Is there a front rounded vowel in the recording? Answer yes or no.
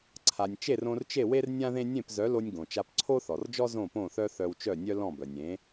yes